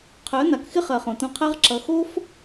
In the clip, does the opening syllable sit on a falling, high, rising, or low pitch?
rising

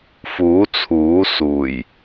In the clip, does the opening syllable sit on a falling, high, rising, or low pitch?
rising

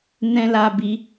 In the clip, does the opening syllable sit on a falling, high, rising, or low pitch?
high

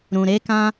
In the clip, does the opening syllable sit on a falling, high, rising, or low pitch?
low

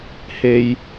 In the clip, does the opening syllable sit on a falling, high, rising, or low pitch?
low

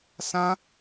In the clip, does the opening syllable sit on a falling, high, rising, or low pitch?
high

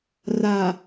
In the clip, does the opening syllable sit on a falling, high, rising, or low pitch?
low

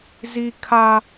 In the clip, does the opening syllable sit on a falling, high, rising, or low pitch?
high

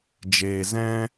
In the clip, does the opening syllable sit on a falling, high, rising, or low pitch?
low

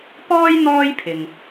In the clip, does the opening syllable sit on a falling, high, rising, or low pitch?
high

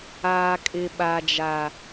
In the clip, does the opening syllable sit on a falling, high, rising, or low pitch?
low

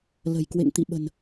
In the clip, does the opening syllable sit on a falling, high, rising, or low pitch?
low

